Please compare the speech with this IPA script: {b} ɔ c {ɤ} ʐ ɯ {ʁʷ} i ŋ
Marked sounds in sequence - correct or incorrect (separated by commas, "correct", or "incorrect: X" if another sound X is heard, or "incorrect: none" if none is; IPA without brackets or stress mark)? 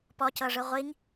incorrect: p, correct, correct